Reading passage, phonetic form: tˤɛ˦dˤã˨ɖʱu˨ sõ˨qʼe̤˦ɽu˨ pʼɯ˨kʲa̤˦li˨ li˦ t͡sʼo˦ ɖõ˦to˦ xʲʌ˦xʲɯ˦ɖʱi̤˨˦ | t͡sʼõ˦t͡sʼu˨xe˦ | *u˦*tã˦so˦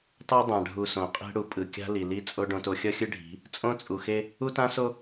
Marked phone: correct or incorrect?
correct